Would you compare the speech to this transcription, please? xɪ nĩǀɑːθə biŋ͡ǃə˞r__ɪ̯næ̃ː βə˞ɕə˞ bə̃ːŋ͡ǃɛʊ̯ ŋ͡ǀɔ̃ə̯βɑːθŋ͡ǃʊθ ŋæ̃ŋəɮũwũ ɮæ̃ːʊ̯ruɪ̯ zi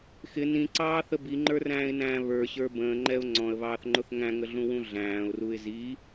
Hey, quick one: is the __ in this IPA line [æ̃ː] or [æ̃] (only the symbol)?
æ̃ː